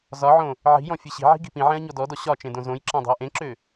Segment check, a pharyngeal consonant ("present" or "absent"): present